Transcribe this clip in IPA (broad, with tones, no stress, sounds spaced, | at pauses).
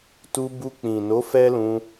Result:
t u˧ b u˧ k͡p ĩ˨ n o˨˦ f ɛ˦ l ũ˧